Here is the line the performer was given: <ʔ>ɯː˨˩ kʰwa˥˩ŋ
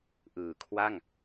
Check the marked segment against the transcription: correct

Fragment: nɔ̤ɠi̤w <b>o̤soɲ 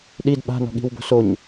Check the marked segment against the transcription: correct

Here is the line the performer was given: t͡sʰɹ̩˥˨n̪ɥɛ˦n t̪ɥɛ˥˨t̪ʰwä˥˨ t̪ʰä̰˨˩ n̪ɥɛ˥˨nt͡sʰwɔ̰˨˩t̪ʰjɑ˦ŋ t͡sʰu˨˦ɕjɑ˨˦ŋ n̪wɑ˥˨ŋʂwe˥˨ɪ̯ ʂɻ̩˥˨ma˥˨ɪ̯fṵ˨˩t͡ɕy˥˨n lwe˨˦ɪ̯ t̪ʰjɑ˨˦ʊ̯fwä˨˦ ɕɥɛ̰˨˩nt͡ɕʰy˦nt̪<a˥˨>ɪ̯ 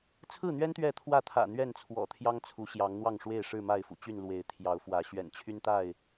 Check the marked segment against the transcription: correct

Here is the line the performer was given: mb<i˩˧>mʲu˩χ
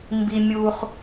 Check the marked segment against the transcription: incorrect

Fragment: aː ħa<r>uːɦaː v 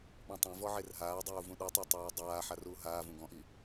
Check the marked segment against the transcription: correct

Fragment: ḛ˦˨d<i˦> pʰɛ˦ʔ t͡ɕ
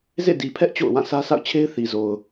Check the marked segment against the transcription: incorrect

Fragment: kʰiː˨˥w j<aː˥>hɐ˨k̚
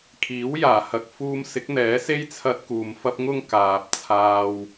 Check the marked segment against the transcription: incorrect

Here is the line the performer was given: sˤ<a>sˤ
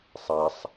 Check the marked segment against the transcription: correct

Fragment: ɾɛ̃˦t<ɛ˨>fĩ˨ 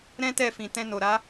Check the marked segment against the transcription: incorrect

